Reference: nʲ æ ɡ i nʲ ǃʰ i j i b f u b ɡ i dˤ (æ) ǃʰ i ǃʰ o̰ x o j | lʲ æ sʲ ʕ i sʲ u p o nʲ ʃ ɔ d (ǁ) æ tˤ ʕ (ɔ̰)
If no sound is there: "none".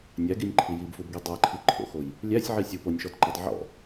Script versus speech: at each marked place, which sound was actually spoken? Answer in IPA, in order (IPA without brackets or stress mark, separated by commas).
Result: æ, ǃ, ɔ̰